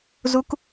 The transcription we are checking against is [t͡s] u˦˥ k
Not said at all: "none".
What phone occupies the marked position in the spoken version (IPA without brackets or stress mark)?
z